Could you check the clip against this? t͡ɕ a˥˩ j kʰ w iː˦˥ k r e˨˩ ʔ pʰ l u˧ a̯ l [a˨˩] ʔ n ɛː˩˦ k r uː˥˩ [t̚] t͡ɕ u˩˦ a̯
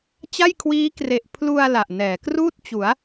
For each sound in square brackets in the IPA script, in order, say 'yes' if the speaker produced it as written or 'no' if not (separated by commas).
yes, yes